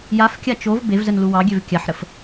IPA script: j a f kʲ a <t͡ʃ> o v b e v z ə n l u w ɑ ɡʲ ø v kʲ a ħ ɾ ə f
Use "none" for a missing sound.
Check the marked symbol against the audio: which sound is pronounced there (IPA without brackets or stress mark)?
t͡ʃ